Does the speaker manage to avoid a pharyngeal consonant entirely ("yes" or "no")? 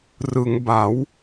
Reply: yes